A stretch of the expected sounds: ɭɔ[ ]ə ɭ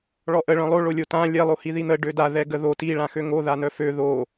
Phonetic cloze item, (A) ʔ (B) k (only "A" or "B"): A